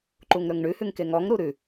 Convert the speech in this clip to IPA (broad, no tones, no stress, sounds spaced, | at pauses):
ǃ u ŋ ɾ ɵ ŋ ɳ ʉ h ʉ ŋ k e ŋ ɔ ŋ ɾ u ɾ ʉ